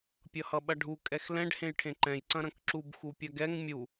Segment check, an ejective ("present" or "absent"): present